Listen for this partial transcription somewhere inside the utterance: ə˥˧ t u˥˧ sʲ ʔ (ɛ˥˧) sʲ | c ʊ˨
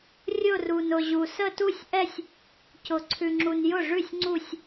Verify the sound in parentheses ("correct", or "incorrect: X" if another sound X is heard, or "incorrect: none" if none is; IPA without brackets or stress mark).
correct